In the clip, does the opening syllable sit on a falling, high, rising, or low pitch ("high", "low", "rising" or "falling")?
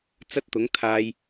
high